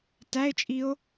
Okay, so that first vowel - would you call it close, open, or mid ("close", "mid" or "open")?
open